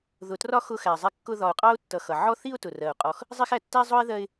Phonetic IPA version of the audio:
ð ʊ˨ t r ɒ˦ x ʊ˥ x æ˨ zˤ ɛ˥ kː ʊ˦ ð ɒ˨ ʊ̯ qʼ ɑ˥ ʊ̯ tː ʌ˨ x ʌ˩ ʕ ɔ˥ θ i˦ ʊ̯ t ʊ˩ r ɜ˩ ʊ̯ qʼ ɔ˨ x | zˤ i˦ x æ˨ tː æ˥ zˤ ʊ˥ ɪ̯ ð ɜ˦ ɪ̯

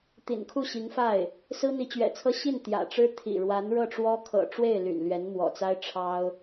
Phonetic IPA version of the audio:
t̪ ḭ˨˩ n kʰ u˥˩ ɕ i˧˥ ŋ f a˥˩ ɪ̯ | s ɹ̩˥ n̪ i˧˥ t͡ɕ ɥ ɛ̰˨˩ t͡sʰ ɤ˥ ɕ i˥˩ n t̪ j ä̰˨˩ ʈ͡ʂ ɻ̩˥ t̪ʰ ḭ˨˩ ɻ w a˧˥ n ɻ ɤ˥˩ ʈ͡ʂ w ɔ˥ kʰ ɤ̰˨˩ ʈ͡ʂ w e˥˩ ɪ̯ l y̰˨˩ n l ɥ ɛ˧˥ n m w ɔ̰˨˩ t͡s a˥ ɪ̯ ʈ͡ʂʰ ɑ˥ ʊ̯

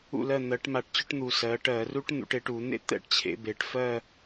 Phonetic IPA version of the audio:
ṵ˥˩ l ɜ˥˩ n̪ ɜ˩˧ ʈ m a˧˩˧ ʈ t͡ɕ ʊ˥˧ ʈ n̪ u˨˩ s ɜ˩˧ ʈ ɜ˧˩˧ r u˦˥ ʈ n̪ ṵ˩˧ ʈ e˩˧ ʈ u˧˩˧ n̪ ḛ˥˧ t̪ ɛ̰˦˥ ʈ t͡ɕʰ ḛ˩˧ b e˩˧ ʈ f ɜ˥˧

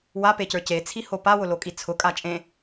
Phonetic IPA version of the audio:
w a p e c ə˞ c e t͡sʰ i h o p a w ʊ l o kʼ i t͡sʰ ʊ kʼ a t͡ʃʼ ẽ

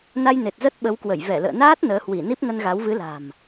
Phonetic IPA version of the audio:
n a˧ j n e˨˩ t̚ z ə˦˥ t̚ ɓ ə˨˦ w k w ə˧˩ j v ɛ˧˩ l ə̰ː˧˨ n aː˦˥ t̚ n əː˨˦ h w i˧˩ n i˦˥ p̚ ŋ ə˧ n ɣ a˨˦ w v ɨ˨˦ l a̤˨˩ m

